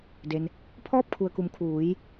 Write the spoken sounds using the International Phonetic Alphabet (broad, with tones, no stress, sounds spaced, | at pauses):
d e˩ n | pʰ ɔː˥˨ p̚ kʰ u˩ ə̯ k u˩ m kʰ uː˩˧ j